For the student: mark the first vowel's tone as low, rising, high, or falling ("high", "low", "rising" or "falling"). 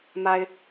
low